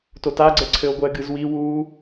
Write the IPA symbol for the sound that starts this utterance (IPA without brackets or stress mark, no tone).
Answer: t